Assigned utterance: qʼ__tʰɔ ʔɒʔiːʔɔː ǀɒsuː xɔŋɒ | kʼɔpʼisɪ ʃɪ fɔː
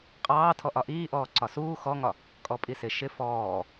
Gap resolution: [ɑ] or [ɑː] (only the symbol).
ɑː